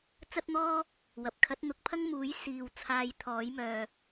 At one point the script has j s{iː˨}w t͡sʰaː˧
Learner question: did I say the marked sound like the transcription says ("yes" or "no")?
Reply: yes